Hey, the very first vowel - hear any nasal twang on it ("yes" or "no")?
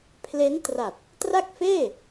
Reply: no